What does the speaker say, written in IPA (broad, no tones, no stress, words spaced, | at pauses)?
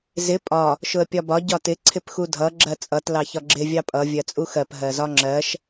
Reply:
zɪ pʼɒ | ʃʊə̯pʲɒbɒ ɟɒtɪ ǀʰɪpxudʱʌ ɡ͡ǁɜt͡sʼʌt lɑçɒɡ͡ǁɪ vʲɑpʼʌ vʲɜt͡sʼuxɜp ɦɜzɒŋ͡ǁɜʃ